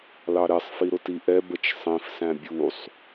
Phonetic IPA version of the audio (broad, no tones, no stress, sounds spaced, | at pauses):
l ɑ ɾ ɛ sˤ f i ɾ ʊ t i ʔ ɛ b ə t͡ʃ sˤ ĩ f s æ̃ bʲ u sˤ